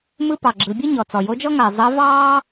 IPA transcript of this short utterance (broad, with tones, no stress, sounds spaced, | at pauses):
m ɯ˥ p ɑ˩ ɡ͡ǁ ɯ˩˧ bʲ ɯ˥ ɲ ɔ˩ t͡s ɔ˩ j o˧˥ d͡ʒ ɔ˥ ŋ ɐː˩ zˤ ɜ˧˥ v ɑː˥